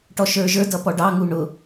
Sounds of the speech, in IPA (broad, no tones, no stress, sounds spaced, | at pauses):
ʈ ɔ ʃ ə˞ ʒ ə˞ d ʌ p ɔ ɖ ɑ ŋ u ɳ ʊ